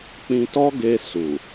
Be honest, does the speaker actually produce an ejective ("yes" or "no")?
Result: no